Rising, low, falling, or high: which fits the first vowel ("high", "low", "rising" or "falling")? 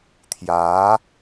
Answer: rising